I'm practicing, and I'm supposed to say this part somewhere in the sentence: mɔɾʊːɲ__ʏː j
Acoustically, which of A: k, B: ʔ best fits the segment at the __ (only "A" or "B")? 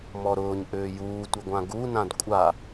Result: B